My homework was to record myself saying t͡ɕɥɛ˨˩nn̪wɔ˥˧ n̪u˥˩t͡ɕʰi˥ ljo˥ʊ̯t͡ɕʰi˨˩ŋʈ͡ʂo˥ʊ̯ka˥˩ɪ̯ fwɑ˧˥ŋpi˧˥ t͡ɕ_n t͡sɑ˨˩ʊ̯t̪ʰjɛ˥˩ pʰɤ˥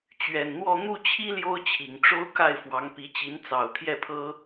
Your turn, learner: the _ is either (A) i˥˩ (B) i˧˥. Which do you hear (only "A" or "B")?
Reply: B